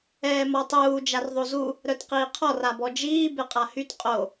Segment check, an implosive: absent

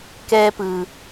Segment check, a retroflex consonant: absent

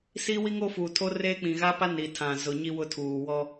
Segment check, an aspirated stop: present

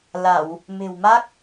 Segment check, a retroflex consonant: absent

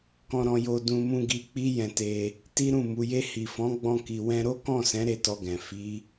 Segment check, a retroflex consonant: absent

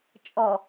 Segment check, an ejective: present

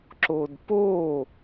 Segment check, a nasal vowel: absent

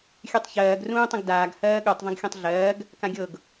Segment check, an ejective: absent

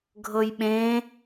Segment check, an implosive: present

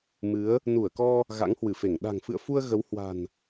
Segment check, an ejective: absent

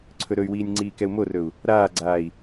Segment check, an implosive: absent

